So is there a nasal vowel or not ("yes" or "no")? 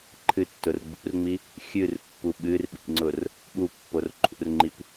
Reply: no